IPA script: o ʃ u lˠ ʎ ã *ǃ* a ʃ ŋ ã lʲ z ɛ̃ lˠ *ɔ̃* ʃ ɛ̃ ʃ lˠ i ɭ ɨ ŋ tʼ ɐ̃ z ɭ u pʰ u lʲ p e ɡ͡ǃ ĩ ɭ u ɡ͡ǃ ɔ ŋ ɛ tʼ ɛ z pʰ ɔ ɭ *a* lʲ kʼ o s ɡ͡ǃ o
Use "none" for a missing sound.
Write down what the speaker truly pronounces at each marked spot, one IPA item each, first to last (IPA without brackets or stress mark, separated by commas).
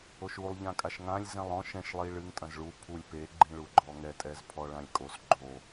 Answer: kʼ, ɔ̃, ã